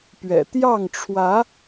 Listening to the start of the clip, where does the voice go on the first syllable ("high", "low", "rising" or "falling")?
low